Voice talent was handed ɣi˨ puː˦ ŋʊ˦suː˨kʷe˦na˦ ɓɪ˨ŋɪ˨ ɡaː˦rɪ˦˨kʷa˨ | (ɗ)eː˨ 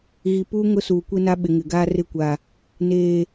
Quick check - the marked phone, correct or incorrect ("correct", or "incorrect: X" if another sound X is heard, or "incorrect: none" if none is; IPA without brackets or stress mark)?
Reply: incorrect: n